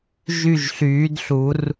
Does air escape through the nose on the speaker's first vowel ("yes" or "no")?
no